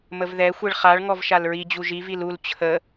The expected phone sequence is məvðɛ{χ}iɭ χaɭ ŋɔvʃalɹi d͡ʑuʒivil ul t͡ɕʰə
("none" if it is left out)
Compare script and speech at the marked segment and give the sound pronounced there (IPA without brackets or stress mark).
xʷ